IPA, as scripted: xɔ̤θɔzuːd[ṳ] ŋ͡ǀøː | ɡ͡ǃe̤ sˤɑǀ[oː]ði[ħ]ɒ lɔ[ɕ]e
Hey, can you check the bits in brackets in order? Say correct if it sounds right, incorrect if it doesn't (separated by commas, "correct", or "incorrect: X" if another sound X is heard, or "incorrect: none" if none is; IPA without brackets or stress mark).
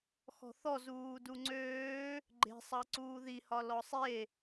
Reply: incorrect: u, incorrect: uː, incorrect: h, incorrect: sˤ